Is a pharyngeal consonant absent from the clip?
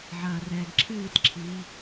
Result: no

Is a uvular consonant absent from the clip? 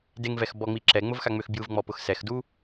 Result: yes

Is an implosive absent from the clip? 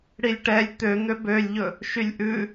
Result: yes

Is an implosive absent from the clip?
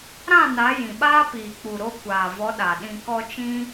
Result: no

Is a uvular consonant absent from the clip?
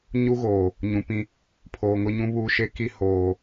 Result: yes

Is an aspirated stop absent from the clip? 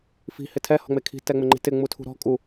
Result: no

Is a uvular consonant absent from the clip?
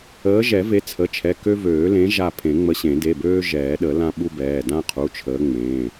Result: no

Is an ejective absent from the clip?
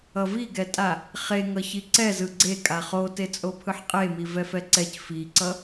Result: no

